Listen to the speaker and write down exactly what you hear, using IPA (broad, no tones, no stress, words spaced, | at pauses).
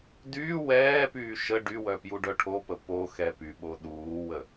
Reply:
dyː wɛːpyː ʃə ɖywœ pjuɖœʈʰopə po xɛpyɓo ɗuːwə